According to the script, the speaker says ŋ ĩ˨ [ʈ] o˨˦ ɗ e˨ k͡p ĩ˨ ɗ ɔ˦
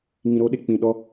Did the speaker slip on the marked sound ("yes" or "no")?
yes